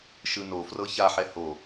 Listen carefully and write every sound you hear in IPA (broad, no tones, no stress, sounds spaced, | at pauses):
ʃ ɯ n o f r ɤ ç a ħ ɛ h o